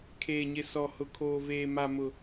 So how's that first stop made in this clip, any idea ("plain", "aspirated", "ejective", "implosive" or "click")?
aspirated